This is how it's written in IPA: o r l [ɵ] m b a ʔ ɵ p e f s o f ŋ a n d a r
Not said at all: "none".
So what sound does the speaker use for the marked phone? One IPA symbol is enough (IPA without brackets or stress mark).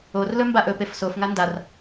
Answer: ɵ